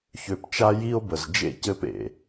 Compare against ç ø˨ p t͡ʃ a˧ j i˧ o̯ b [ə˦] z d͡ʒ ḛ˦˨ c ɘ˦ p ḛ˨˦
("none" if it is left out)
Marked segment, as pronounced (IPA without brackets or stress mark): ə˨